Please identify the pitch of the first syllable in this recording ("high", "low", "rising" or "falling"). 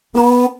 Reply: high